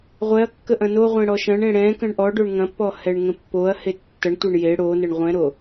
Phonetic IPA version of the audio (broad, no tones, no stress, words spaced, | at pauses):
ʁʷɛɐ̯ kːəʔɐ̃noʁʷẽ ɽɔʃɐ̃ɳẽ ɽɛ̃ kə̃ɳʔɔɖoɳ ŋɐ̃pːɔ hɛɳŋə̃pːoɐ̯he tːɐɳtʷeɳ je ɽonəɳ ʁʷɛ̃ɾo